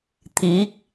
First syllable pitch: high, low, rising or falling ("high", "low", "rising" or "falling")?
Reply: rising